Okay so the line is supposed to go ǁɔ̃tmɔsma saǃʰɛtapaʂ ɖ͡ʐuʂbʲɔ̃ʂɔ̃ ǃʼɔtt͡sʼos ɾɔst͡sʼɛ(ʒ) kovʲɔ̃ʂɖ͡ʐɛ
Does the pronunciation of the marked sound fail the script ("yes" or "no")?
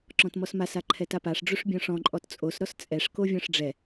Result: yes